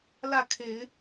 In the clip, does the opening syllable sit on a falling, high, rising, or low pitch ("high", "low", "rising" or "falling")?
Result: falling